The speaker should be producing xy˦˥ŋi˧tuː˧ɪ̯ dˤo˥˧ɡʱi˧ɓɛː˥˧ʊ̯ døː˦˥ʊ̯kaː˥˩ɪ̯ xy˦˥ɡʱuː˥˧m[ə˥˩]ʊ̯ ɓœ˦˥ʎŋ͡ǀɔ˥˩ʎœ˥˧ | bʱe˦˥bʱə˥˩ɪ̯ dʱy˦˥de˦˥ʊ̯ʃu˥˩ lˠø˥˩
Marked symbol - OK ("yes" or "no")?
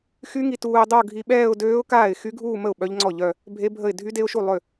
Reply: yes